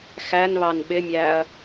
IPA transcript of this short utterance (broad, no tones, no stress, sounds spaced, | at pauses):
x æ n β ɑ n ɓ ɪ mʲ æ ɐ̯